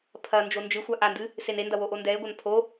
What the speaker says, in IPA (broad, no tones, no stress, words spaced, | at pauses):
pʰɐ nd͡ʒond͡ʒɨxʷa ʔandɨ | senendɐ woʔondɛe̯ɡʷɐn pʰo